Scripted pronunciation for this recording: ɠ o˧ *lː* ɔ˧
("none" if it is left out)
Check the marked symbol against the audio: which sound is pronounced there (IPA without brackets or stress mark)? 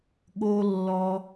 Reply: lː